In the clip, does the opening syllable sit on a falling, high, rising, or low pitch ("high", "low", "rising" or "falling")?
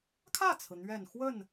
falling